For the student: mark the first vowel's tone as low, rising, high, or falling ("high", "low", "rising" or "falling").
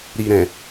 low